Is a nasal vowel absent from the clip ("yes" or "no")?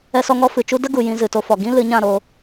no